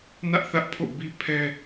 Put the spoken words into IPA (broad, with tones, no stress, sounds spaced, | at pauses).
n ä˦ ʔ θ ä˦ ʔ pʰ o̰˦˨ b i˦ pʰ ɛ˦